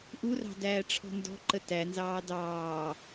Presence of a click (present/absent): present